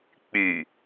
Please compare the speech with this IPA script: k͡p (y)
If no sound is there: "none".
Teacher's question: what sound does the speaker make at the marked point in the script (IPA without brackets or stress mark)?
y